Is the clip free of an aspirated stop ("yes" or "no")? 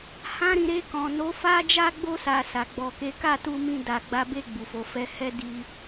yes